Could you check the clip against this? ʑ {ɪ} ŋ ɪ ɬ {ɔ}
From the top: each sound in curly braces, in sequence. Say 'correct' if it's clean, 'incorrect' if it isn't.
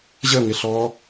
incorrect: ə, correct

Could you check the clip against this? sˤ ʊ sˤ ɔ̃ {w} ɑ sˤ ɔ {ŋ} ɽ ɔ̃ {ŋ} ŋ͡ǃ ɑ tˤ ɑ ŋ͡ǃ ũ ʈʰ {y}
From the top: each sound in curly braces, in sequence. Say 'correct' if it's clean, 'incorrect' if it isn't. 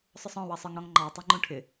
correct, correct, correct, incorrect: ɪ

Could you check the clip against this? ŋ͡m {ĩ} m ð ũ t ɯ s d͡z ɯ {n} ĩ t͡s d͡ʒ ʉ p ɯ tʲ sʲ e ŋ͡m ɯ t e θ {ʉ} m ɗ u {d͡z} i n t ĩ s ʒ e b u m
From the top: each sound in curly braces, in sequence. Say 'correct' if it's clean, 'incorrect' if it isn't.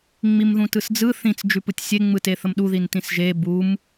incorrect: i, incorrect: θ, incorrect: ə, incorrect: ð

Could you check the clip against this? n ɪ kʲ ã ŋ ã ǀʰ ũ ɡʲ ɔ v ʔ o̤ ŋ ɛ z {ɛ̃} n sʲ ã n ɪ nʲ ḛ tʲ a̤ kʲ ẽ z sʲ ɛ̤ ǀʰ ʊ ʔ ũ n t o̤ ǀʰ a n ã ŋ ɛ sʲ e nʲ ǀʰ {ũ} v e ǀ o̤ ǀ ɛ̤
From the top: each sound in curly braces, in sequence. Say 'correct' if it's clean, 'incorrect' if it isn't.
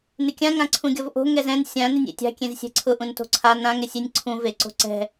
correct, correct

